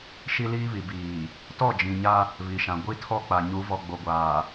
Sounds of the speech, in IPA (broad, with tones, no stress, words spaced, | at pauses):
ʃi˦liː˦βi˨ biː˨ | tɔ˦˨d͡ʒĩ˨ɲa˦ | βi˨ʃã˨ ɡʷi˦tʰɔ˦ k͡pa˨ɲu˨˦vɔ˨ ɡ͡bo˨ɡʷaː˨